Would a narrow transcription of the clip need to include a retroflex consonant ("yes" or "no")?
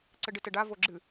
yes